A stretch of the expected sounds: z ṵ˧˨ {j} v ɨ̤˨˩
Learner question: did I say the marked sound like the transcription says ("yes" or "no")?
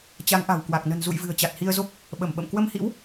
yes